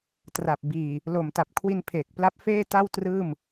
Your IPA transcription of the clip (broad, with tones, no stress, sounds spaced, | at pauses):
t r a˨˩ p̚ b iː˨˩ | l o˨˩ m t a˨˩ p̚ kʰ w i˧ n pʰ eː˨˩ k̚ p l a˦˥ p̚ f eː˥˩ t a˥˩ w t r ɯː˥˩ m